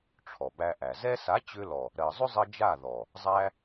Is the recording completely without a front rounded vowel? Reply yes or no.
no